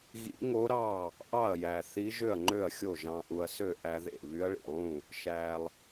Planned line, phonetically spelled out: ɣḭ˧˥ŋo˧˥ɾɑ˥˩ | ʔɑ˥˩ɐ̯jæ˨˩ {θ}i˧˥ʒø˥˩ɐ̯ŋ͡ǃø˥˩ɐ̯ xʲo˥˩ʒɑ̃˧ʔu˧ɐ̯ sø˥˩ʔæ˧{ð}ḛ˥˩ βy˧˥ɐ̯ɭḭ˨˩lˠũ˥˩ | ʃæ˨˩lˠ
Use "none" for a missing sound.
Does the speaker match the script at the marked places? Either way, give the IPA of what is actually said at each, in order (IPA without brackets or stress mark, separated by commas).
θ, ð